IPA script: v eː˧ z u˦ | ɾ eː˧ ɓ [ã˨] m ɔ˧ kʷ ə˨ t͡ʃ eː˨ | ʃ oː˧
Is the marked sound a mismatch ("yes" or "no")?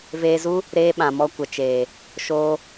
no